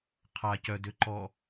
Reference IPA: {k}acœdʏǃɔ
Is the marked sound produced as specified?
no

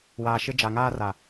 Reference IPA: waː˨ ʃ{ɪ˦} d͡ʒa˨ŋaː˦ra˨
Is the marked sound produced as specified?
yes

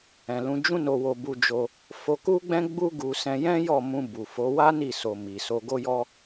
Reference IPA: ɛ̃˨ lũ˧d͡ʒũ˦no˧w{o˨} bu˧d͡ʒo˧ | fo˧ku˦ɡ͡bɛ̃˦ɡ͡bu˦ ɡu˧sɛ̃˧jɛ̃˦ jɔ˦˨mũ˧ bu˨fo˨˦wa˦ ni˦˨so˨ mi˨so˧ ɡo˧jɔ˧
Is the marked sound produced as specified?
no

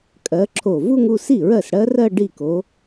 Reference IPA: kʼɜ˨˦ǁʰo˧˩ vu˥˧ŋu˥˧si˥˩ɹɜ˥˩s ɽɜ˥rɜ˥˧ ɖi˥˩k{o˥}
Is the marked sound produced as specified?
no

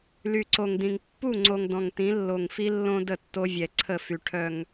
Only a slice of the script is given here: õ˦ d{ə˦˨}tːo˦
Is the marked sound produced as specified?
yes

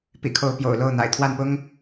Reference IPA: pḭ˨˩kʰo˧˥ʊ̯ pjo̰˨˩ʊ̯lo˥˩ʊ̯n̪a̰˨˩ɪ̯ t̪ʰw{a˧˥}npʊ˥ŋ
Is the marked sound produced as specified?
no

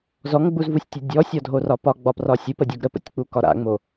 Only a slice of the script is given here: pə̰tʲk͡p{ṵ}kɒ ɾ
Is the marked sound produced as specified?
no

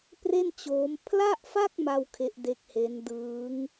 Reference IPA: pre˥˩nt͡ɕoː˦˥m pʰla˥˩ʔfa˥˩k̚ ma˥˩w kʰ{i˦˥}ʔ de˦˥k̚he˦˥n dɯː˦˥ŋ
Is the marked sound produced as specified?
no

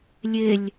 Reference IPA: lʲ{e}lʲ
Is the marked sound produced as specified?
yes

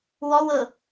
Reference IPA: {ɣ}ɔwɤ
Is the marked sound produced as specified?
no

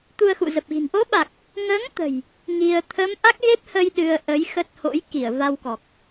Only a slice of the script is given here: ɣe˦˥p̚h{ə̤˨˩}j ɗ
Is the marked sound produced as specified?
no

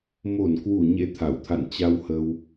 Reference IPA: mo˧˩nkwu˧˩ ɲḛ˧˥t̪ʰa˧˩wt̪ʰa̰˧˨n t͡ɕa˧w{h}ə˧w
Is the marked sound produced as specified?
yes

